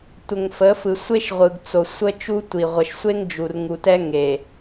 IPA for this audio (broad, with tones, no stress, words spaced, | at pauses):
tʷə˨ŋfə˨˦fɯ˨ sʷe˦ʃʁʷɯ˨ɡt͡so˨ sʷə˦t͡ʃu˦ tʷi˨ʁʷə˨ʃsʷe˦ŋd͡ʒu˨r ŋu˨tɛ˦ ŋe˨